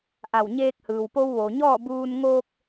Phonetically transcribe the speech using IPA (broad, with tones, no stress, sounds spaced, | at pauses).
ʔ a˧˩ w ɲ eː˧ k̚ h ɯː˩ w p o˧ w ʋ oː˩ ɲ ɔː˥˨ b uː˧ n ŋ oː˧ k̚